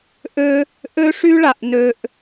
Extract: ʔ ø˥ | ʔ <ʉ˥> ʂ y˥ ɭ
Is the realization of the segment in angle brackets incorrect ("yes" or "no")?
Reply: yes